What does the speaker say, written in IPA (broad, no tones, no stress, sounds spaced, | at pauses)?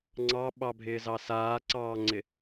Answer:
ŋ͡ǀ ɑ ɓ ɑ bʱ ɪː z ɑ s aː ǀ ɑː ŋ͡ǀ ɪ